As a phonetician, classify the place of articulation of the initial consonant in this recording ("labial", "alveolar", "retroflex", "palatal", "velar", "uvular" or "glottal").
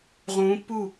uvular